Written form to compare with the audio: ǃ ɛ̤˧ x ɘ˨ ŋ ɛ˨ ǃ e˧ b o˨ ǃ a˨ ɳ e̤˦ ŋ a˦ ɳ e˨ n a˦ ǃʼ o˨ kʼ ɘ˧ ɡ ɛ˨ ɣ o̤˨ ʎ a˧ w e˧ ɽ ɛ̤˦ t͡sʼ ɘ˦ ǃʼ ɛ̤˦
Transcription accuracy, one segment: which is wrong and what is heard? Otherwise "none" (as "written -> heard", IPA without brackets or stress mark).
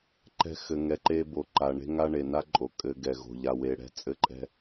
none